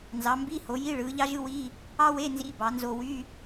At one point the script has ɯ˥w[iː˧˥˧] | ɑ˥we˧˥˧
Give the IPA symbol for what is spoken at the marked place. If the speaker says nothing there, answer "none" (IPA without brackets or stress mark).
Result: iː˧˥˧